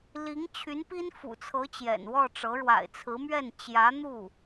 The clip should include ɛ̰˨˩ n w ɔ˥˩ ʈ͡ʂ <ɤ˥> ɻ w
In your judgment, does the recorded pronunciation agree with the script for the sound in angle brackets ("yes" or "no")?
no